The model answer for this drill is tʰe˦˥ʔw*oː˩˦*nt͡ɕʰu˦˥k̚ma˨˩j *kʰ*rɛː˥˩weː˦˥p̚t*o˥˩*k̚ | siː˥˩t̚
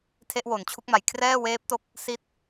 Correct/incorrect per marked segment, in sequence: incorrect, correct, incorrect

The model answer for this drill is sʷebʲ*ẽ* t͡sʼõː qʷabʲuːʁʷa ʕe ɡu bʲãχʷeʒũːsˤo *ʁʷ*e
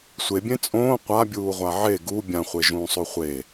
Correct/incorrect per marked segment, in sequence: correct, incorrect

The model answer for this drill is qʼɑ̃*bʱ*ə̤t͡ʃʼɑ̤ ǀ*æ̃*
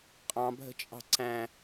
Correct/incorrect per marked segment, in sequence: correct, correct

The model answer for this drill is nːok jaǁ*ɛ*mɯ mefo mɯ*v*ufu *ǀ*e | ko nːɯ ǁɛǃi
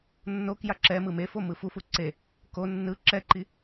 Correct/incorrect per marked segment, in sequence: correct, incorrect, correct

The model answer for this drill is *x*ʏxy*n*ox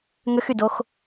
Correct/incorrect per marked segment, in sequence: incorrect, incorrect

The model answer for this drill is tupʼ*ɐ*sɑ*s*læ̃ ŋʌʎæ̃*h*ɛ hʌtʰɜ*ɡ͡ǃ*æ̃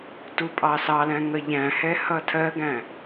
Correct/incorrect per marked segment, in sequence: incorrect, incorrect, correct, incorrect

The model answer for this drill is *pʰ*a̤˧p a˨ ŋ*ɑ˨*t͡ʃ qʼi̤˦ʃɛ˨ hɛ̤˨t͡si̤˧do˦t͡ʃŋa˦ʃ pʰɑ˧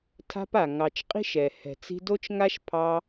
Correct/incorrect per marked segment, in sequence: incorrect, correct

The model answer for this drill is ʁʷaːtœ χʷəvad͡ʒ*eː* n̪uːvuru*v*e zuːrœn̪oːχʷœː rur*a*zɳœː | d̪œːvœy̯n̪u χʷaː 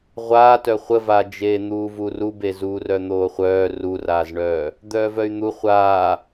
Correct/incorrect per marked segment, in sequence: correct, incorrect, incorrect

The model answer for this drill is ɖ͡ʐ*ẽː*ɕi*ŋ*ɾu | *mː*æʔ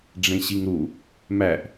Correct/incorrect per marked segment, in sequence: incorrect, correct, incorrect

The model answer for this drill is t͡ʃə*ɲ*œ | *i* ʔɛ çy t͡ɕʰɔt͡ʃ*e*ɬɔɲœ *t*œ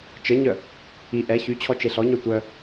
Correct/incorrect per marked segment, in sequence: correct, correct, correct, incorrect

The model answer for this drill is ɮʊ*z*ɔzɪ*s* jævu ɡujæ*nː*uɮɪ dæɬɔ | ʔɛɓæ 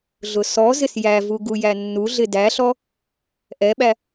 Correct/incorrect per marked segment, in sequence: incorrect, correct, correct

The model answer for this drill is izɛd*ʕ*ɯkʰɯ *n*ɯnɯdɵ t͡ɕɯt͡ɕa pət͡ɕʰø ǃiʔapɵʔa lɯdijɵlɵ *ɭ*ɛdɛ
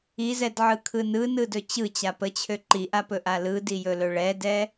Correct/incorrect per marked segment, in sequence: correct, correct, correct

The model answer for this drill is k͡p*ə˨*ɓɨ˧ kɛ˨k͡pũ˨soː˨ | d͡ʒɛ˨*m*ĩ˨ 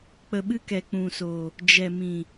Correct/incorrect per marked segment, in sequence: correct, correct

